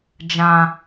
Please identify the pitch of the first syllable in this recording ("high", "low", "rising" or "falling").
high